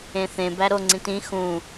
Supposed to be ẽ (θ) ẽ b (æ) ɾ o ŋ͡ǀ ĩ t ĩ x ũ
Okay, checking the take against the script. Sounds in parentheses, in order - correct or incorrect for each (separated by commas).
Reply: correct, correct